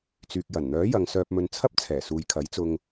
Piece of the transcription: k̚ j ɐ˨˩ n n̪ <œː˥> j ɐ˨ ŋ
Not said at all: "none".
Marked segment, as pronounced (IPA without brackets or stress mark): œː˨˥